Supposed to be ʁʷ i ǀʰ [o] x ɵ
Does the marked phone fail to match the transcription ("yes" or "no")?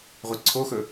no